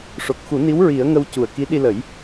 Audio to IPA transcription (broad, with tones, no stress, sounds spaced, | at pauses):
ʂ o˨˩ k̚ x u˨˩˦ n i˧˥ w ɹ i˨˩˦ ə̯ ŋ ə˧ w c u˨˩ ə̯ k i˧˥ ɗ i˧ l ə˨˩˦ j